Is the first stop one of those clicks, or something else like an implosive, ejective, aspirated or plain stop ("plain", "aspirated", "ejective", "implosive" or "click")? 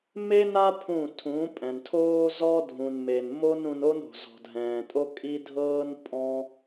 aspirated